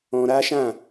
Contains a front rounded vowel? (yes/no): no